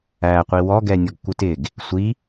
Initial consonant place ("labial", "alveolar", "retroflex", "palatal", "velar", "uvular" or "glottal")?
uvular